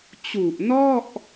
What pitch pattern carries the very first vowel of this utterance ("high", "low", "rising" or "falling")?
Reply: low